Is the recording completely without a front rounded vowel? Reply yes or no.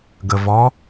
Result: yes